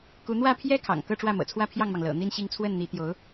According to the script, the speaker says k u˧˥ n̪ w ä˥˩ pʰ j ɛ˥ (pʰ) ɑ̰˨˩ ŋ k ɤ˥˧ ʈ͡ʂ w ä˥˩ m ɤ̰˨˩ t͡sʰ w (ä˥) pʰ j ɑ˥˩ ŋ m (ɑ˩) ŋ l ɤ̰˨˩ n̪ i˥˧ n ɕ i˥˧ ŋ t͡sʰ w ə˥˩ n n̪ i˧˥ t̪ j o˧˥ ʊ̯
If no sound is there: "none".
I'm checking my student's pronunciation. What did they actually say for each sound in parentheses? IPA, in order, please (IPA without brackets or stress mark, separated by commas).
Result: kʰ, ä˥˧, ɑ˩